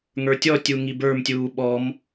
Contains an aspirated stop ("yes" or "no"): no